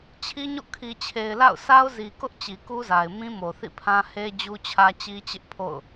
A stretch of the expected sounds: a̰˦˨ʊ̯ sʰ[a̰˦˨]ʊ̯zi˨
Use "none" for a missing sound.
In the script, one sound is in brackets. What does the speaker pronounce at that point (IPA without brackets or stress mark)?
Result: a˦